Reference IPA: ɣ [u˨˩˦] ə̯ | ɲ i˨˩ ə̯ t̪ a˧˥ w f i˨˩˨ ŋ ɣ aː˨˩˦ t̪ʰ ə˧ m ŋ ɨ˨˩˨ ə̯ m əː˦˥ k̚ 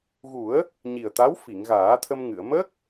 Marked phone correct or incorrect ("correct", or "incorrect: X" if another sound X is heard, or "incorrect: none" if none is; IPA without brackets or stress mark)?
correct